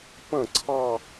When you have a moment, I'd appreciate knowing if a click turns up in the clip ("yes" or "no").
yes